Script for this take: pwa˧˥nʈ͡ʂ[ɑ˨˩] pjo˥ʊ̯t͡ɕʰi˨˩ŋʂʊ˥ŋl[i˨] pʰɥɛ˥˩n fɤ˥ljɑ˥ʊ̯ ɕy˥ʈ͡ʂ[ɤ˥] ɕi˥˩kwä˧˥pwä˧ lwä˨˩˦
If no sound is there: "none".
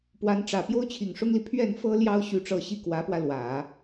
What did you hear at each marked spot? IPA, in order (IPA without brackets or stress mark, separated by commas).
ä˨˩, i˨, ɤ˥